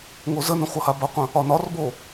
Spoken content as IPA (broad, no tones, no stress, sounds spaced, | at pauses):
ŋ o z ə n ə̃ χʷ ʌ h a b ʌ qʷ ə̃ | ɒ n ɒ r b o